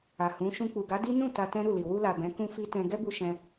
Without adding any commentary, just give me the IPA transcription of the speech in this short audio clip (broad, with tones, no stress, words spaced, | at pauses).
a˨ hũ˨˦ ʃũ˧k͡pu˨ɡa˨˦ di˦ nũ˦˨ ta˧tɛ̃˦ ɾu˦˨li˨ wu˧la˨ bɛ̃˨˦kũ˦fi˦tɛ̃˧ ɡɛ˦bu˧ ʃɛ̃˧